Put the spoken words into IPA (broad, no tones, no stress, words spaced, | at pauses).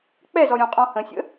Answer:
k͡pɛzɔɾʲɔ̃qʼɔ̃ hə̃sʲə̰